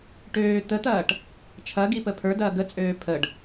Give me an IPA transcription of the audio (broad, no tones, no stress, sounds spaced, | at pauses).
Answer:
ʈ øː t̪ ə t̪ ɐː ʈ | t͡ʃʰ ɐ ɡ i p ə pʰ ə˞ d ɐː ɡ ə t͡sʼ øː pʰ ə ɖ